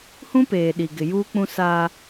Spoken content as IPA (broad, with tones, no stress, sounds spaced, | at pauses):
h ũ˦ p eː˨ ɗ i˨ ɡ ɪ˨ j uː˦ k͡p ũ˦ s a˦